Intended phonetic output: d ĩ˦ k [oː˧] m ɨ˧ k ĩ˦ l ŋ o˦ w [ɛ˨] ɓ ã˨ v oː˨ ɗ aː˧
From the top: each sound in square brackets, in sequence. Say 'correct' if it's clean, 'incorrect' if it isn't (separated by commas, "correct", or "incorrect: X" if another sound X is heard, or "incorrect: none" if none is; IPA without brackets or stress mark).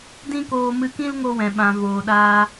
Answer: correct, incorrect: ɛ̃˨